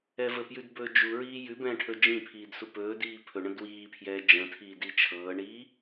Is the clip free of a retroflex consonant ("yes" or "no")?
no